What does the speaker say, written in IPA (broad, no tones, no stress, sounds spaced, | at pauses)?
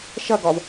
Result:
ʃ ɐ ɡ ɒ v